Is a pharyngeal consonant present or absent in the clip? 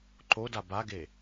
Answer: absent